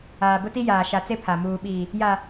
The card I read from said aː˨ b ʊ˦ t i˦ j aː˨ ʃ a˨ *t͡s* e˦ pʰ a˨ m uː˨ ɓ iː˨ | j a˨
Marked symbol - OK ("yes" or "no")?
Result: yes